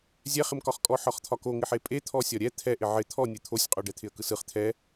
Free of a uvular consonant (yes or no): no